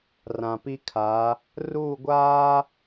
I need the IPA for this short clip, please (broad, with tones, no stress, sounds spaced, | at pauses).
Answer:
r ã˨ p i˦ kʰ a˨˦ | r uː˦˨ ɡʷ aː˦